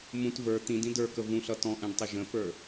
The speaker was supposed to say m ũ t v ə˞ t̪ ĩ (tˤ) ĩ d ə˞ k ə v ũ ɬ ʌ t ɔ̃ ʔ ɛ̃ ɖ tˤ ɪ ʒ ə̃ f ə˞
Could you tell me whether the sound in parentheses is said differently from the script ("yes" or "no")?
yes